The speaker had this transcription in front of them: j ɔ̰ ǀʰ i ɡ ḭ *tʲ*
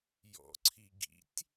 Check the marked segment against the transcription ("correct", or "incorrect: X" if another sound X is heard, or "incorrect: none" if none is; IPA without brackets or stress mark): correct